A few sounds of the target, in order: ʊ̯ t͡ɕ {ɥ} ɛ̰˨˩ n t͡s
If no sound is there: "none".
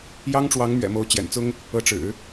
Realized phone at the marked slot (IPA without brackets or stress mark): j